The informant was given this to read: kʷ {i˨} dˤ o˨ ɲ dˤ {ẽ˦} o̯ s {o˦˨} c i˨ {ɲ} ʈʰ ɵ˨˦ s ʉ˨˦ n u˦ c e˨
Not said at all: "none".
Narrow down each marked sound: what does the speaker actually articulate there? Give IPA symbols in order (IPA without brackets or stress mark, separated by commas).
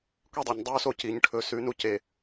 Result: i˦, e˦, o˦˨, ɲ